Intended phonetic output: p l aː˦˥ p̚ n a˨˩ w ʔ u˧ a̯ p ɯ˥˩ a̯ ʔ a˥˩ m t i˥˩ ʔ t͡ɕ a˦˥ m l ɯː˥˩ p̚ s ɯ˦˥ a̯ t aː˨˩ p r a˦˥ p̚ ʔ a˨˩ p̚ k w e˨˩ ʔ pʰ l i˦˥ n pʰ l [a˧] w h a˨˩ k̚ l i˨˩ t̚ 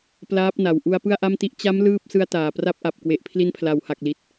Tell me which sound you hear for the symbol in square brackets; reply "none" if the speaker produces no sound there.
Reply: a˩˦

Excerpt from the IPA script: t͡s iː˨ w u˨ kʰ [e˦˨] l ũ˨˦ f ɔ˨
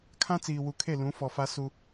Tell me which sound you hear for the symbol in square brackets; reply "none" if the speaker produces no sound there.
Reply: e˦˨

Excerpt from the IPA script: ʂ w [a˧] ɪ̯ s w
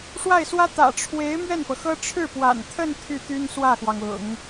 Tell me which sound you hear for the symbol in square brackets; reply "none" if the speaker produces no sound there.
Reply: a˥˩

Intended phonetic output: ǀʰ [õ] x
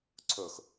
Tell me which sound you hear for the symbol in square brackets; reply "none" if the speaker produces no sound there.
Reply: o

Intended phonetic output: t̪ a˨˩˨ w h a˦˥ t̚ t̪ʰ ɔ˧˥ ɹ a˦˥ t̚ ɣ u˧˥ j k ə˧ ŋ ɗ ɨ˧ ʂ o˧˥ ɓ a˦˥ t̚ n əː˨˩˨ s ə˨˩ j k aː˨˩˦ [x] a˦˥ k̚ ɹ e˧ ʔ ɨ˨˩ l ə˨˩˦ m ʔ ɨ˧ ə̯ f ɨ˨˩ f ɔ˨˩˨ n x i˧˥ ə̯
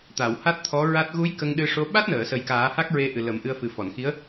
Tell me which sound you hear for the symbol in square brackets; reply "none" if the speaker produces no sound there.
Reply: h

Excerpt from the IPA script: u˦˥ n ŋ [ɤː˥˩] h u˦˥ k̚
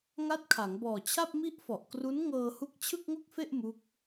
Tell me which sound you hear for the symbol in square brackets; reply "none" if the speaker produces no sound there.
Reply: ɤː˧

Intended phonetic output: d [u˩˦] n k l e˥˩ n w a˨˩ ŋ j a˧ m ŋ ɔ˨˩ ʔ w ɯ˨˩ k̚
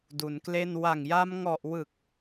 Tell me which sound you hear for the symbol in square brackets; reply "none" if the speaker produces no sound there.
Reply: u˩˦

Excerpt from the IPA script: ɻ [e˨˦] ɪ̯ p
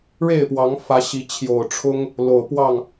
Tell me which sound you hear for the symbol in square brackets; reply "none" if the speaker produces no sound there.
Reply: e˥˨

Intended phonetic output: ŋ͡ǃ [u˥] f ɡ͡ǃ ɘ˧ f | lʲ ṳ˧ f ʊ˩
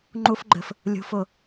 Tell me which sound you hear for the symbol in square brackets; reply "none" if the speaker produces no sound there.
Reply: u˥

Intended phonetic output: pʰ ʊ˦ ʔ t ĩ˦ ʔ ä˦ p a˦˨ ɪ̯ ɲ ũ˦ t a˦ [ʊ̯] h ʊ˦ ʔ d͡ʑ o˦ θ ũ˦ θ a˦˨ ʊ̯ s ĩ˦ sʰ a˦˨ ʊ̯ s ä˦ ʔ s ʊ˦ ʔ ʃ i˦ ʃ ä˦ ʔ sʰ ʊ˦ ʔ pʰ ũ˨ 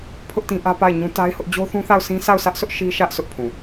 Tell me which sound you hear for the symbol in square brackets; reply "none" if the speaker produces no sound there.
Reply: ɪ̯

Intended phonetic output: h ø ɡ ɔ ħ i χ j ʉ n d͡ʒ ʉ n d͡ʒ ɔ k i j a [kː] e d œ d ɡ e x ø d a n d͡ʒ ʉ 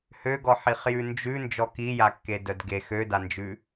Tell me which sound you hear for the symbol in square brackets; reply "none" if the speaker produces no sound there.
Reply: kː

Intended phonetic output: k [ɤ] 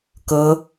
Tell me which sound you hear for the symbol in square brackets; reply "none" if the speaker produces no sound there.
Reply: ɤ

